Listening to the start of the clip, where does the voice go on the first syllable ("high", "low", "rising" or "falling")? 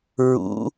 rising